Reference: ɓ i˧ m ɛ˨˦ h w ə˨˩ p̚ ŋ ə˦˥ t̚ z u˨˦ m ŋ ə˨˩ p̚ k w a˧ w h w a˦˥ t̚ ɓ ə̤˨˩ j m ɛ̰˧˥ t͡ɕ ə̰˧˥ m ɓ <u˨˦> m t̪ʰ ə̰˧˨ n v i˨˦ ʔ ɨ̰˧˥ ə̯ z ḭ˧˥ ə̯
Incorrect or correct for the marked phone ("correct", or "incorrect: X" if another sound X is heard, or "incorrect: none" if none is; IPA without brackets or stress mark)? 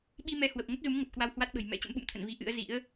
incorrect: ṵ˧˨